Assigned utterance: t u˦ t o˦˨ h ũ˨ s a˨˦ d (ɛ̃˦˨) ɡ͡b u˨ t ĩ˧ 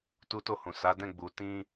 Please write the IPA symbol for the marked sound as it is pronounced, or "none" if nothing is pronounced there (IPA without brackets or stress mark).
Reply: ɛ̃˦˨